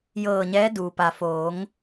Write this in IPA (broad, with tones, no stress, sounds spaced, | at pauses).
j ɤː˧˩ ɲ ɛː˧˥ d uː˩ p a˩ f oː˩˧ ŋ